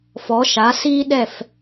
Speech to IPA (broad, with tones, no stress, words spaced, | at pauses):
fɔ˩˥ʃa˩˥si˥ɗɛ˥˩f